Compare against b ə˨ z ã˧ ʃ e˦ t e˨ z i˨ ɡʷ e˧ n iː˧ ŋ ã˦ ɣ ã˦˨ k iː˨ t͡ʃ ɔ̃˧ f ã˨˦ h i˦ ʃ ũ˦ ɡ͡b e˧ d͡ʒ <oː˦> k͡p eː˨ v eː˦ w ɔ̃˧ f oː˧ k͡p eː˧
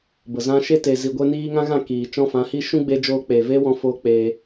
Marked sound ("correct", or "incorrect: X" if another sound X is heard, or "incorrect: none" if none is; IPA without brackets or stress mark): incorrect: oː˧